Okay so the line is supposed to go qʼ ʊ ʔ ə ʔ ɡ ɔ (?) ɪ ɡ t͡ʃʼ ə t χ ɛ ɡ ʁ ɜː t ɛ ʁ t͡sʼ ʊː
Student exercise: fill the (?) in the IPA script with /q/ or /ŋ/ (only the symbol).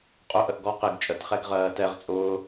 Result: q